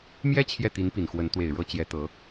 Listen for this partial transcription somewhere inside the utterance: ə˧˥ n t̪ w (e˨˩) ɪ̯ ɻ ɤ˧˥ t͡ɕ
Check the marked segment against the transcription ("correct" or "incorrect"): correct